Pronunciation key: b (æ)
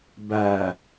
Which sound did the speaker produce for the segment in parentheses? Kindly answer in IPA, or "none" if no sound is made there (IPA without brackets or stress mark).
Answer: æ